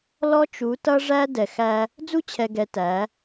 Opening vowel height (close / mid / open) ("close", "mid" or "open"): mid